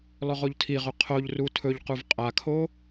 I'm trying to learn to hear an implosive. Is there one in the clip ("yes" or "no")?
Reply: no